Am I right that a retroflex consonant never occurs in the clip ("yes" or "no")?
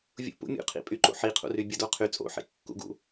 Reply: yes